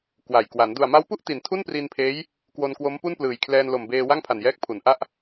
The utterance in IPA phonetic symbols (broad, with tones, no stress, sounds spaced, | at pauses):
k w a˨˩ j k w a˩˦ n d u˨˩ a̯ m a˦˥ w p u˥˩ ʔ t i˩˦ n tʰ u˥˩ n p r i˧ n pʰ eː˦˥ j | k w o˧ n k w o˦˥ m p u˥˩ n p l ɯː˨˩ j kʰ l ɛː˧ n l o˨˩ m b eː˧ w a˥˩ ŋ pʰ a˨˩ n j ɛː˦˥ k̚ pʰ u˩˦ n ʔ a˥˩ ʔ